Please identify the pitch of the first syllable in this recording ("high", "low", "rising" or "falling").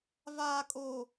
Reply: low